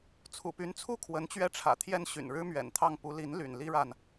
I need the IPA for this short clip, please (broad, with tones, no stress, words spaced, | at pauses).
t͡sʰṵ˨˩py˧˥nt͡sʰu˥˩ kʰwə˧˥nt͡ɕɥɛ˥˩ʈ͡ʂʰä̰˨˩t̪ʰjɛ˥n ɕy̰˨˩nɻɻ̩˥mɥɛ̰˨˩nt̪ʰɑ˥˩ŋ pu˧˥li˧˥n ly̰˨˩nli˥ɻa˨n